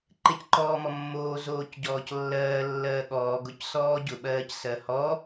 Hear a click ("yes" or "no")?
yes